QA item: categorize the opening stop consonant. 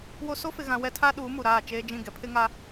aspirated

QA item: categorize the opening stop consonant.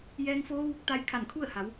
plain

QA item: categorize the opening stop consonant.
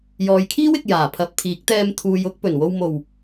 aspirated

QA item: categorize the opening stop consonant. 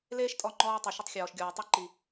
ejective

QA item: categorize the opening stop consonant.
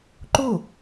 click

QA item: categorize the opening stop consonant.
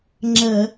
click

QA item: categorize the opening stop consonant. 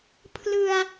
aspirated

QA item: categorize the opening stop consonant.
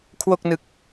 aspirated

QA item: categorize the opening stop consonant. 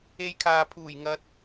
aspirated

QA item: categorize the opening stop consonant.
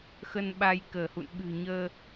implosive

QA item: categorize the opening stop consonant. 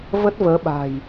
plain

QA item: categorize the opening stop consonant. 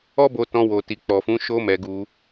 plain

